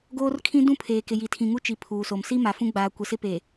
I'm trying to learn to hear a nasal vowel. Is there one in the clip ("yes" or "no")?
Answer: yes